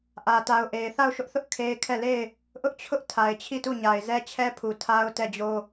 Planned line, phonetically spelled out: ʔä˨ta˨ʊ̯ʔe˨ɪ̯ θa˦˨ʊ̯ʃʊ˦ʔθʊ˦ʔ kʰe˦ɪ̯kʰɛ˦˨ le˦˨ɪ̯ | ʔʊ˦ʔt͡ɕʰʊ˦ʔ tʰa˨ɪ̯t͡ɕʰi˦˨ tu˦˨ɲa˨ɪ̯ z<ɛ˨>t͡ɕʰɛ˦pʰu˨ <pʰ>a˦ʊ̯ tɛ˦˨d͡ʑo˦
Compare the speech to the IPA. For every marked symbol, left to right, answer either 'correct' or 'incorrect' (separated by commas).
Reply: incorrect, incorrect